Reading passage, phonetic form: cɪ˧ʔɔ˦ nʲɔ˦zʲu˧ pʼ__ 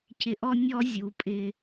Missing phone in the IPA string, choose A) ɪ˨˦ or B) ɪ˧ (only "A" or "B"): B